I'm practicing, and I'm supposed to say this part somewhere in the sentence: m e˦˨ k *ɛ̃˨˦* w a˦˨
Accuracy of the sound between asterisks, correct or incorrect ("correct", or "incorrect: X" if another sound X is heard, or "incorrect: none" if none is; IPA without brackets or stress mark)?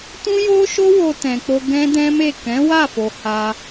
correct